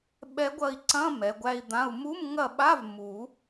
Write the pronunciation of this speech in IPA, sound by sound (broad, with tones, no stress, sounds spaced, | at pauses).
ɓ ɛ˧˥ ɡʷ ɐ˦˨ i̯ ǀ ɐ̃˧˥˧ m ɛ˩˥ ɡʷ æ˧˥˧ i̯ d̪ ã˧˥˧ u̯ m u˧˥˧ m ŋ ɐ˦˨ ɓ a˧˥˧ v m u˨˩˦